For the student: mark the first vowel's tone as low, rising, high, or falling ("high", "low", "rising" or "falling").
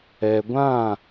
low